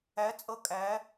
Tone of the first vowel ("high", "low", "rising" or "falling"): rising